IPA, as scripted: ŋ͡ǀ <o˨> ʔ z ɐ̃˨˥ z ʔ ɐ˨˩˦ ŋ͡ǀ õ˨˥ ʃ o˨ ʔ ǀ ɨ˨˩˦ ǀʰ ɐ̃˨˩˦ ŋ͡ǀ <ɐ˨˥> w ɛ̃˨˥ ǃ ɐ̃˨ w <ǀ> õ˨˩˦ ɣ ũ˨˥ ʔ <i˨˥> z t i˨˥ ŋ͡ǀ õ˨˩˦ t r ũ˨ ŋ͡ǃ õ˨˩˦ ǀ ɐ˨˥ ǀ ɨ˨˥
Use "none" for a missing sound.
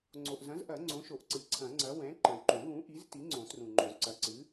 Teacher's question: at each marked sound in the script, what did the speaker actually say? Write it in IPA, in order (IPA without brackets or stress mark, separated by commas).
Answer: o˨, ɐ˨˥, ǃ, i˨˥